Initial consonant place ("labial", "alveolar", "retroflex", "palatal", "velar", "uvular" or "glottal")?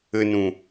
alveolar